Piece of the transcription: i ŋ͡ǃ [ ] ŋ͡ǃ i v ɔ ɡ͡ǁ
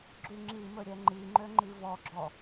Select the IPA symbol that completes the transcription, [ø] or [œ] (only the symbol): ø